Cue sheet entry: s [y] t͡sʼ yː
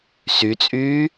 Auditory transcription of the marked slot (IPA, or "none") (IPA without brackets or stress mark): y